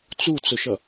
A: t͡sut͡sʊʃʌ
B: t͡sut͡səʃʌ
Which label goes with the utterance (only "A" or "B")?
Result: A